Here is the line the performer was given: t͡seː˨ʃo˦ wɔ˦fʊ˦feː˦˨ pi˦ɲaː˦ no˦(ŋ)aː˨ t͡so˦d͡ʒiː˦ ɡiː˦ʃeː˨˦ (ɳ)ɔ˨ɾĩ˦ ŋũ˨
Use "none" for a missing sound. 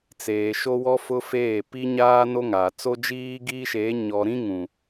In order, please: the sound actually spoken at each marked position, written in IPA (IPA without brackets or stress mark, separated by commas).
ŋ, ɲ